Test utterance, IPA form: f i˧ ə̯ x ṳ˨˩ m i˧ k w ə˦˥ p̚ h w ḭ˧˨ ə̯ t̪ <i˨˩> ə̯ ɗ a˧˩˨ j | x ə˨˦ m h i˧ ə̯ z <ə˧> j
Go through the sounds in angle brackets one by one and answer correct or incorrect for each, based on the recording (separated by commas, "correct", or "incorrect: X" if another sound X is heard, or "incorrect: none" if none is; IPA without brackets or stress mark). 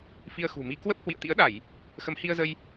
incorrect: ḭ˧˥, correct